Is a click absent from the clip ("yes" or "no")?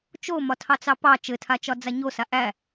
yes